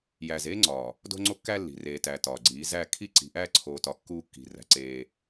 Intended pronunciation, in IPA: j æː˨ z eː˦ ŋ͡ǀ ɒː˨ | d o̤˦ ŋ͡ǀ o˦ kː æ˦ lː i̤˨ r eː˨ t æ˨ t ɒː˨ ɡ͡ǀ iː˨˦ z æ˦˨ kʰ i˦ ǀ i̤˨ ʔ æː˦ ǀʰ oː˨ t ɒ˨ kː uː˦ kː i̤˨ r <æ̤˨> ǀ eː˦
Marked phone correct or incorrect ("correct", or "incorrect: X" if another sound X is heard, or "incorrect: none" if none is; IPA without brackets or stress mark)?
correct